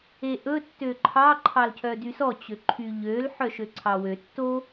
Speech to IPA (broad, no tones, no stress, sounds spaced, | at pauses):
e ʔ ɵ tː ø ǃʰ ɑ ǃʰ ɑ l cʰ œ d y s ɔ t͡ɕ ø ǃʰ y ʎ ø l ħ œ ʃ ø ǀʰ ɑ w ø tː o